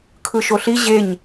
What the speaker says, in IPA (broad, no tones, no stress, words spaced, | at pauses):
kʰɯʃoɬi ʑeɲ